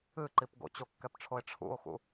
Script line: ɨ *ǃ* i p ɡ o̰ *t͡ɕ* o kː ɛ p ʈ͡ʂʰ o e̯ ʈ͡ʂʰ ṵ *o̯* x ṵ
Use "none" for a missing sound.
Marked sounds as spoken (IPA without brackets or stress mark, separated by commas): ǃ, t͡ɕ, o̯